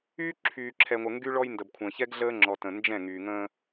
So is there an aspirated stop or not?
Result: yes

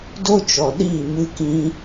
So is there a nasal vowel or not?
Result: yes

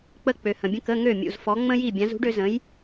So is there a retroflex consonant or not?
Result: yes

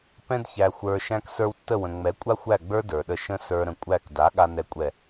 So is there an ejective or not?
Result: yes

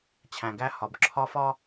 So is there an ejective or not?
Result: no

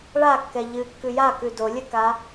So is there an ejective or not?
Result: no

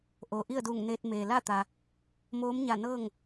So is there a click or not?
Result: no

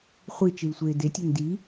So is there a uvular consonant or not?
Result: yes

